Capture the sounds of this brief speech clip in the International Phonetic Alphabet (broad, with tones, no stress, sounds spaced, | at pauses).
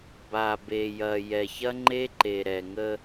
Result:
b a˨ b e˨ j ɐ˨ j ɛ˨ ç ɐ˦ ŋ͡ǃ e˦ ǃ e˨ ɾ ɛ˨ ŋ ə˦